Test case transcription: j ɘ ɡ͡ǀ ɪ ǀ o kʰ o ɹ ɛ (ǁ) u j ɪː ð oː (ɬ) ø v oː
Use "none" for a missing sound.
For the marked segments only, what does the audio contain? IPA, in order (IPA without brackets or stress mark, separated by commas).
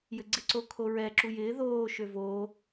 ǁ, ʃ